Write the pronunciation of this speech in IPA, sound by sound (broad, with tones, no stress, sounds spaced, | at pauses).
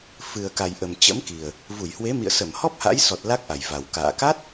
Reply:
f ɨ˨˩ ə̯ k a˨˩ j ʔ ə˨˩ m t͡ɕ ə̰˧˥ m k i˨˩ ə̯ | v u˧˩ j h w e˨˦ m ḭ˧˨ ə̯ s ə˧˩ m h ɔ˦˥ p̚ h a̰˧˥ j s ɔ˨˩ t̚ l a˦˥ k̚ ʔ a˨˩ j v a˨˩ w k a̰ː˧˨ k a˦˥ t̚